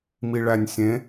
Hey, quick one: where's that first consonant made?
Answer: lips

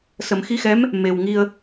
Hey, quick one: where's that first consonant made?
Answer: tongue tip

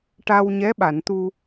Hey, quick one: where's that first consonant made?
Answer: retroflex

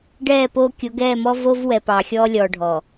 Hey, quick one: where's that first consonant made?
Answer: retroflex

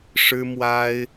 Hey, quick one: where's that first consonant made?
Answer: retroflex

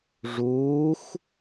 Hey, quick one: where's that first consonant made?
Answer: retroflex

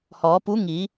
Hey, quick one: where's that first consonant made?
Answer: throat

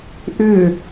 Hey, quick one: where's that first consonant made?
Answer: throat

